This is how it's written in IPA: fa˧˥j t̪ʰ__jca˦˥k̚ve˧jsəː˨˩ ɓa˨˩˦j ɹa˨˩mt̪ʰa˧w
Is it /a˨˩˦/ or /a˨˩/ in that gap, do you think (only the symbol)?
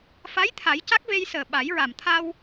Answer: a˨˩˦